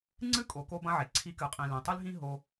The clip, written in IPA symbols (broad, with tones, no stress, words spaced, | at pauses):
ŋ͡ǀɨ˦kʼo˨ ko˦bɐ̃˦ʕe˨ ǀʰi˧kɨ˨qʼĩ˨ lẽ˨tˤɨ˦lɦĩ˦ ɦo˧